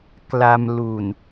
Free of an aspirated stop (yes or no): yes